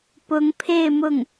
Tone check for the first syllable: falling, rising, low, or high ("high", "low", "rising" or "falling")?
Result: rising